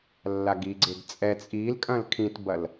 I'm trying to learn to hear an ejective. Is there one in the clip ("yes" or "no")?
yes